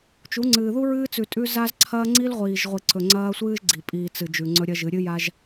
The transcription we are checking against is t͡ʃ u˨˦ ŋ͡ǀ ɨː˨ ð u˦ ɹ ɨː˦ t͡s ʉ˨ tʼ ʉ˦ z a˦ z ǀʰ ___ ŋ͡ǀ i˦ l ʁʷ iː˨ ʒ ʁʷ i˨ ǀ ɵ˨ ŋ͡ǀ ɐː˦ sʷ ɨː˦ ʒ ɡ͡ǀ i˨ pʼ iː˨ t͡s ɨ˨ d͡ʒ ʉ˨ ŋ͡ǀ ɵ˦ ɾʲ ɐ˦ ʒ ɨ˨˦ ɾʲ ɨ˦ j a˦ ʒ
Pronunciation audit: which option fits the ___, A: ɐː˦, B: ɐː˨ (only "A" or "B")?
A